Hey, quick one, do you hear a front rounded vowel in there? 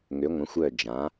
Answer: yes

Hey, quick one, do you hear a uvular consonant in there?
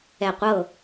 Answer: yes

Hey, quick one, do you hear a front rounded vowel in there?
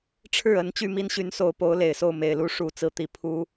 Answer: yes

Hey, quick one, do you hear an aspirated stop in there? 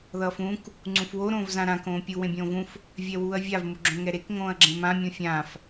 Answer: no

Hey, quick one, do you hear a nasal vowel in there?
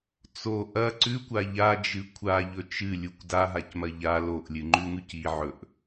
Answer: no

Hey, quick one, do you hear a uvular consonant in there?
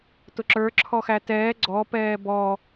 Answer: no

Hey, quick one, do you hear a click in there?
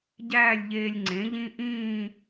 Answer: yes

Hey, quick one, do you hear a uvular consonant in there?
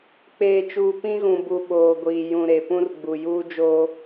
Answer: no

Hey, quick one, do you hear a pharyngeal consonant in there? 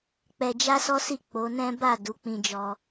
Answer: no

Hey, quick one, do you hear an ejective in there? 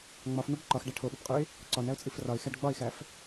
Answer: yes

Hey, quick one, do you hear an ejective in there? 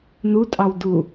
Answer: yes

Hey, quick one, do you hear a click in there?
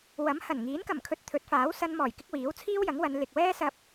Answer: no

